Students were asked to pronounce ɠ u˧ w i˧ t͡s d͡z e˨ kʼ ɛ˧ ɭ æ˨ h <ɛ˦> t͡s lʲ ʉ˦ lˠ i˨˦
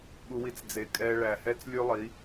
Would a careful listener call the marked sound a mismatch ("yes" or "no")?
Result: no